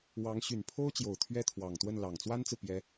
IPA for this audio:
w ɑ˧˥ ŋ ɕ y˨˩ n pʰ o˥ ʊ̯ t͡ɕ j o˨˩ ʊ̯ t̪ʰ ɥ ɛ˥ t̪ʰ w ɑ˨˩ ŋ t̪ w ə˥˩ n l ɑ˨˩ ŋ t͡s w a˥ n t͡s ɹ̩˨ p j ɛ˥

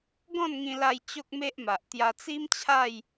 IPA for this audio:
ɡ ɔ̃˥˧ n ŋ ĩ˧ l a˧ j t͡ɕ o˦ k̚ m e˦ ʔ m a˨ ʔ t̪ j a˧ t͡s i˦ m t͡ɕʰ a˥˧ j

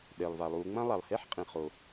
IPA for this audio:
ɗ e˩ lˠ v a˩ lˠ u˩˧ ŋ͡m ɐ̃˥ lˠ a˩ lˠ h e˥ ħ qʼ ĩ˩ χ o˩

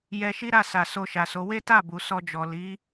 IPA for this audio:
j ɛ˧ ʃ i˦ ɾ a˦˨ s a˨ s o˧ ʃ a˨ s o˨˦ w e˦ t a˦˨ b u˨ s ɔ˧ d͡ʒ ɔ˨ l i˨˦

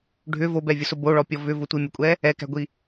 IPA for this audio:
ɖʱ ʏ v o b ɛ vʲ ʊ s ʊ b o ɭ ɔ pʲ ɔ v ʏ v ʊ tʷ i mʲ ʊ kʷʼ ɛ | ɛ k æ̤ ɡʷ i

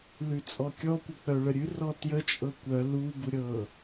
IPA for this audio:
l ʉ t͡sʼ ɔ kʲ ɔ kʷ ə k͡p œ ɭ ə ɾʲ ʉ r ɔ t j ə t͡ʃʼ ɤ kʷ œ l u b u ɾʲ ɤ

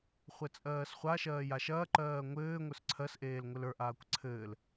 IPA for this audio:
χʷ ɘ t͡sʼ ɜː s χʷ a ʃ ɜː j a ʃ ɐː ǃ ɜː ŋʷ ɘː ŋʷ ə˞ s ǀʰ ɜ s ʔ eː l ŋʷ ɘ l ə˞ ʔ aː kʷ ǀʰ ɘː l

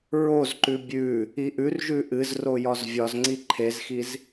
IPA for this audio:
ɹ o z ǃ ʉ bʲ ʉ | i ʔ ʉ r ʒ ʉ ʔ ɨ z r o j ɒ z vʲ ɒ z ŋ͡ǀ i ǃʰ e z x i z

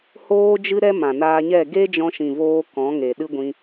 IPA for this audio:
h oː˦ d͡ʒ ɨ˦ ɾ ɛ˦ m ã˨ n aː˧ ɲ ɛ˦˨ ɡ e˦ d͡ʒ ɔ̃˧ ʃ ĩ˨ v oː˧ k ɔ̃˨˦ ŋ e˨ ɗ ɨ˦ ɡʷ ĩ˧

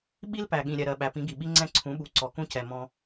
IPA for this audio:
ɓ i˦ l p æ˨ ɠ ĩ˨ ɾʲ ɛ˨ ɾ ɜ˨ ɓ æ˨ p ĩ˨˦ ɡ i˨ ɓ i˦ ŋ͡ǀ ɛ̃˦ ǀʰ ũ˨˦ ɓ u˨˦ ǀ ɔ˨ k ũ˦ c ɛ˨ m ɔ̃˦

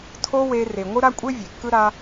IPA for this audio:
tʰ o˦ w e˧ r e˨ ŋʷ ɯ˦ ɾ a˦ kʷʼ e˦ vʲ e˨ kː ɯ˦ ɾ a˦

